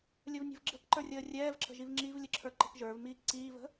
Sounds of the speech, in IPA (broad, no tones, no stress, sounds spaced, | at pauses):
lʲ ə v nʲ ə̤ v ɡ͡ǁ ə̤ k ǃ ə˞ rʲ əː rʲ ɛː v ǁ ə̤ ʒ i v ŋ͡ǁ i v lʲ ə ǁʰ ə˞ ǃ ə̤ k ʒ ə˞ v m iː k ǀ iː v ə̤